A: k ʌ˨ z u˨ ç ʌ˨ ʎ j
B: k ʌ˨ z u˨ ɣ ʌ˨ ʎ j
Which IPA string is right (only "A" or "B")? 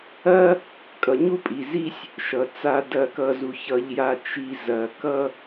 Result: A